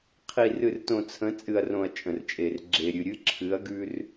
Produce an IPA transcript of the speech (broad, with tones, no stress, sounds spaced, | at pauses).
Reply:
qʰ i˨ r ɨ˨ r t õ˨ t͡sʰ ə̃˨˦ t͡sʼ ɨ˨ ɐ̯ r õ˨ ɐ̯ t͡ʃʼ ə̃˨ r t͡ʃʼ e˨ r ɡ͡ǁ e˨ ɾʲ ɨ˨ ɾʲ ɨ˦ ǁʰ ɨ˨˦ ɐ̯ ɡ ʉ˦ r